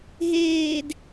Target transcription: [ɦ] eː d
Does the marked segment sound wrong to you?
no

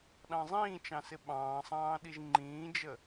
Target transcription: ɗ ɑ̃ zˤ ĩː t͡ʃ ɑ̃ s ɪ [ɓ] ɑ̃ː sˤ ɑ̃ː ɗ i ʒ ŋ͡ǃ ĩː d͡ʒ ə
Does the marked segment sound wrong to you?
no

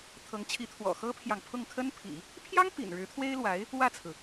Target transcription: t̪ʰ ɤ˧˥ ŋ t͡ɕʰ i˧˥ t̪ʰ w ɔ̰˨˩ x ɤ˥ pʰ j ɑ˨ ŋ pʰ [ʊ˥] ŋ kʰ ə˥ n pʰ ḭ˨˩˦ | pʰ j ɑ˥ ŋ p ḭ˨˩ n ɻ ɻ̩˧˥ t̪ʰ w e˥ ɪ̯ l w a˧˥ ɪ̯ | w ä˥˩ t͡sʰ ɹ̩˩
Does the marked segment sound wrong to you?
yes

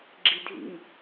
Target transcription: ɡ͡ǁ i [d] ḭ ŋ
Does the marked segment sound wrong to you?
yes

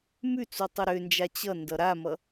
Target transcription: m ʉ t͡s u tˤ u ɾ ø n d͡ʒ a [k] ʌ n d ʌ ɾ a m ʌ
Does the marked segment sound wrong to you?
yes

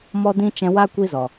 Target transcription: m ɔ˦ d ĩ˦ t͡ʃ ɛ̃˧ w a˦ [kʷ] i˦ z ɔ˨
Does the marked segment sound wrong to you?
no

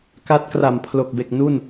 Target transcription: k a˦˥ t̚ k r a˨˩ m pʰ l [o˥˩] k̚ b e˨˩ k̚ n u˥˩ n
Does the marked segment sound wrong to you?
yes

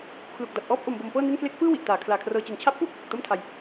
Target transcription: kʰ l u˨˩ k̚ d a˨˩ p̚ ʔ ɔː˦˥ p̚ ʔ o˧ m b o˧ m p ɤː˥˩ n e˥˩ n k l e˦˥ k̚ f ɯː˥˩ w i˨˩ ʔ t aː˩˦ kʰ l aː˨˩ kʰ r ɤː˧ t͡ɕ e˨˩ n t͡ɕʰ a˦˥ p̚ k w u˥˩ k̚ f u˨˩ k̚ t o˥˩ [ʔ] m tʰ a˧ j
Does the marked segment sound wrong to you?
yes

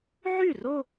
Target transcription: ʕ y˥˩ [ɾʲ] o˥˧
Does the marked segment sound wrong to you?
yes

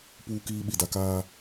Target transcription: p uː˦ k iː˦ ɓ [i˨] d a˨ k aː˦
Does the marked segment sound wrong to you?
no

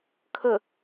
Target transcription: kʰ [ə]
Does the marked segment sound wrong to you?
no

